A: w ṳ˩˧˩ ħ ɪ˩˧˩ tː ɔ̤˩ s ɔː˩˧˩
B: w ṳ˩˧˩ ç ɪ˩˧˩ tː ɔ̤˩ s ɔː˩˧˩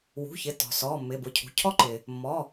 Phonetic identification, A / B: B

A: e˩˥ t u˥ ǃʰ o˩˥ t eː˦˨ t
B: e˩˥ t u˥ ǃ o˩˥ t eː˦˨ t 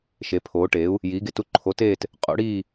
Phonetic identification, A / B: A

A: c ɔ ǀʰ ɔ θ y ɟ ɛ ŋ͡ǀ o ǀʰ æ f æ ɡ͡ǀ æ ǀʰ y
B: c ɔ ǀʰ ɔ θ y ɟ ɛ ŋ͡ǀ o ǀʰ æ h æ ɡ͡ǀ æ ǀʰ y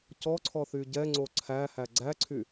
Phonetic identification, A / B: B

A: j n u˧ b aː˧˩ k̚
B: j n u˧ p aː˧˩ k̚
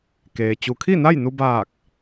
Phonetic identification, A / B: A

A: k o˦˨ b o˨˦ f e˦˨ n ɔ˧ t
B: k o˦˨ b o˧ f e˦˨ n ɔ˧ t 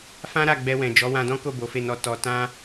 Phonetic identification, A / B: A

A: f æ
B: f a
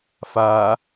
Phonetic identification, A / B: B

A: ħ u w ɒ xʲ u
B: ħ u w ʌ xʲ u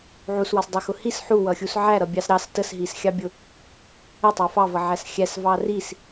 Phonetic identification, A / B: B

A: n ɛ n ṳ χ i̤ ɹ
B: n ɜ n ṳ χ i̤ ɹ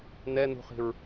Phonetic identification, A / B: A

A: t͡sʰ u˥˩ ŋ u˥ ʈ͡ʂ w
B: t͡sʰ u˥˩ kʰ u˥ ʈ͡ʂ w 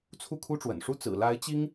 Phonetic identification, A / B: B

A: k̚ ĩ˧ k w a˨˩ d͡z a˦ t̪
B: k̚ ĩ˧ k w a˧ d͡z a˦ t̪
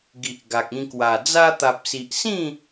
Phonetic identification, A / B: A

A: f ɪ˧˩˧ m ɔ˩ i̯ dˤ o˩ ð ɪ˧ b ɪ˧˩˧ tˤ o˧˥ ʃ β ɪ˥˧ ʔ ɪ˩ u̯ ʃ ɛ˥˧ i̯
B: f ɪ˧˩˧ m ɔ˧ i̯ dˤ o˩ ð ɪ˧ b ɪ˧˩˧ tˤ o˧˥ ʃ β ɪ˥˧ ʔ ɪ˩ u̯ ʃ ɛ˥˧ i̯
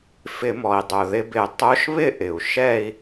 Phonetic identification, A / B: A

